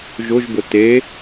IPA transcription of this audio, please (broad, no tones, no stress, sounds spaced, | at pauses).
ʒ ʊ ʒ b ʊ t e